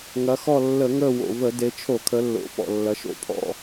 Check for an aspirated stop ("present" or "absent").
present